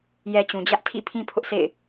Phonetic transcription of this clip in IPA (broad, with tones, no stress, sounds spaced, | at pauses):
j ɛ˦ t͡ɕ ũ˨ d͡ʑ ä˦ ʔ tʰ ḭ˦˨ pʰ ĩ˦ pʰ ʊ˦ ʔ s ḛ˦˨ ɪ̯